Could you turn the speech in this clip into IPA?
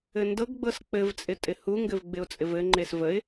ɘ n d ɤ ɡ ɡ͡b ɤ s k͡p ɘ v t͡sʼ ɪ tʼ ɪ h u ŋ ɡ ɘ v ɡ͡b ɪ ʊ̯ t͡sʼ ɪ v ɘ ŋ͡ǃ e s v ə ɪ̯

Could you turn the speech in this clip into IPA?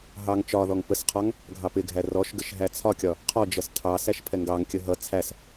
ɦ ɑ ŋ t͡ʃ ɒ ð ɔ ŋ p ə s qʰ ɒ ŋ | ɡʱ ɑ p ɪ ɡʱ æ r ɔ ʃ ɡ ə ʃ ɦ æ t͡sʰ ɒ kʲ ɒ | qʰ ɔ d͡ʒ ʌ s tʰ ɑ s æ ʃ pʰ ɛ ŋ ɡ ɑ ŋ kʲ ə ɦ ʌ t͡sʰ æ s

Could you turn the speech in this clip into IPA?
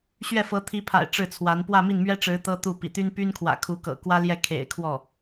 ɕ ɥ ɛ˥˩ f ɤ˧˥ t̪ʰ i˧˥ pʰ a̰˨˩ ɪ̯ ʈ͡ʂ ɻ̩˥˩ t͡sʰ w a˧˥ n p w ä˥˧ m i˥˩ n m ɥ ɛ˥ ʈ͡ʂ ɻ̩˧˥ t̪ ɤ˥ t̪ u˥˩ p ḭ˨˩ t̪ y˥ n p y˥ n kʰ w ä̰˨˩ kʰ u˧˥ k ɤ̰˨˩ k w ä˥ l j ɛ˥˩ kʰ ḛ˨˩ ɪ̯ kʰ w ɔ˥˩

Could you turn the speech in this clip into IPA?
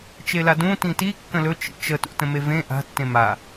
t͡ʃ e l a d ũ t ĩ t i kː ə̃ l ɵ t͡ʃ ḭ t͡ʃ ə t ṵ t ə̃ m e v ẽ ʔ a̤ tː ẽ m a

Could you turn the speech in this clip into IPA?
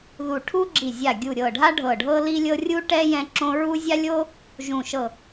ð u˧˩ ʈʰ u˥ ɡ͡ǁ i˧˩ zʲ a˧˩ ɡʲ u˧˩ ɾʲ ɤ˧˩ ɖʱ a˥ ɖʱ ɤ˧˩ ɖʱ ɤ˥ l i˥ lʲ ɤ˥ rʲ u˥ ʈ ɛ˥ j ɛ̃˥ ǁ õ˥ ɹ u˥ zʲ a˥ lʲ o˥ | ʒ ũ˧˩ ʃ ɤ˧˩

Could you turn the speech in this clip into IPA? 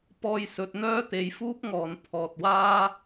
p ɔː˧ j s ɵ˧ t̚ n̪ œː˥ t̪ e˧ j f uː˥ p̚ ŋ ɔː˨ n pʰ ɔː˨ t̚ w aː˥

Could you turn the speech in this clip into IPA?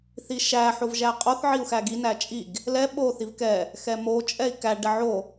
θ i ʃ æ ħ o v ʒ æ qʼ o θ ʕ i u̯ x æ ɡ i n æ t͡ʃʼ i ɡ | l ɛ ɓ o θ i v k ɛ | x ɛ m o t͡ʃʼ ɛ i̯ k æ ɖ ɛ ʕ o

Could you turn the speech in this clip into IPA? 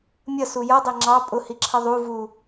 mʲ ʌ s u j ʌ dˤ ɛ ŋ͡ǁ ɑ pʼ ʊ h i ǁʰ ʌ ðˤ u v u

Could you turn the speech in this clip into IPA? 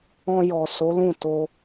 ɔ̃˧ j ɔ˨ s o˨˦ l ũ˦˨ t o˧

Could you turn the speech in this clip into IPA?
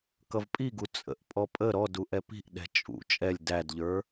k ʌ v pʼ i ɡ u t͡sʼ ə̰ ʔ pʼ ɔ pʼ ə ɾ ɔ d u ʔ ɛ p i̤ ʔ ɗ ɛ̤ t͡ʃʼ ṵ t͡ʃʼ ɛ lʲ d æ d ʎ ə˞

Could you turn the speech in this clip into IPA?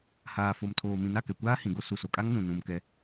h aː˨ f o˨ m tʰ oː˨ m ĩ˨ n a˦˨ k ɛ˨ kʷ aː˦ h ĩ˨ ɡ o˦ s u˨ s o˨ kʼ a˦ ŋ n ũ˨ n ũ˨ m k ɛ˦

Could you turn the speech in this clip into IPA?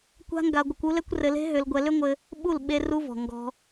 kʷ a̤˦ ŋ ɡ a˧ ɡʷ ɘ˧ kʷ u˦ l ɛ˦ kʷ r ɘ˧ l e̤˦ ɦ ʏ˧ l ɡʷ ɛ˧ l ʏ˦ ŋʷ ɘ˧ | ɓ u˦˨ l ɓ e˧ r u˦ v ɔ̤˨ ŋ ɡ ɔ̤˧

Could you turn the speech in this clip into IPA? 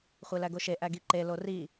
χʷ e l æ ɡ o ʃ e ʔ æ ɡ i ǃ e l o r i

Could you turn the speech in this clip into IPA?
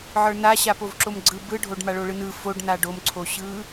ʕ ə˞ n a ɕ a p o v ǁ o m ɡ͡ǀ ɯ b ɯ ɖʱ o ɖ m a ɭ o ɭ ɯ n ɯ f o ɖ n a ɖ o m ǀʰ o ɕ ɯ

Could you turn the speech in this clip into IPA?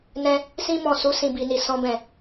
n ɛ̃˧ | s ĩ˦ m ɔ̃˦˨ s u˨˦ s ĩ˦˨ b i˧ n i˧ s ɔ̃˦ b ɛ̃˦˨

